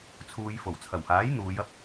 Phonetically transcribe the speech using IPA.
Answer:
t͡sʰuː˧j fo˨˩wt͡sʰɐ˨˩whaː˨˥j n̪uː˨˧jɐ˥p̚

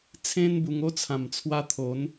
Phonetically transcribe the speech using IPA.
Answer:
t͡sʰẽ˦nbu˧ŋ o˥˧t͡sʰã˨˩mt͡sʰwa˧ t̪ʰo˨˦n

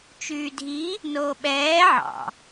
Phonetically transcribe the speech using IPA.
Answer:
t͡ʃyːdʱi | noːɓɛː ʕɑ̰

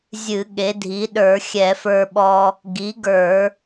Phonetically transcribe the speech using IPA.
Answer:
zʲɨ˧˩˧ ɠe˩˥dʱi˩˥ɗə˞˧˩˧ xʲɛ˧˩˧fə˞˧ɓɔ˧ | ɡi˩˥ɡə˞˧˩˧

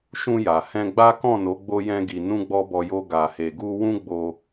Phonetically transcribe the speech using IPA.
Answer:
ʃũ˧ja˨ hɛ̃˧ɡ͡ba˦ kɔ̃˦˨no˨˦ ɡ͡bo˦jɛ̃˦ɡi˧ nũ˦ɡ͡bɔ˦bɔ˧jo˦ ɡa˧he˧ɡu˦ wũ˦ɡ͡bo˧

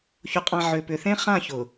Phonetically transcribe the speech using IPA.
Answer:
çʊ˨qʼã˨ ʕʏ˨ pʏ˨θẽ˦ χã˦˨çʊ˨

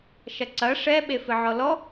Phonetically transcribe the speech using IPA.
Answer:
ʃɐǀɐ ʂɛ ɓefɨʕɔlɔ

